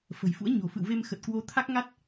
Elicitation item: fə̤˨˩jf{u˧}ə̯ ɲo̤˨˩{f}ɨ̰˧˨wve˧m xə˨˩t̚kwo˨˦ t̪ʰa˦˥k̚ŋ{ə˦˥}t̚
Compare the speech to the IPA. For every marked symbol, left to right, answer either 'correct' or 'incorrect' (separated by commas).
incorrect, correct, incorrect